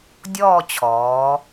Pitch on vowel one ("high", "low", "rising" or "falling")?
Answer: falling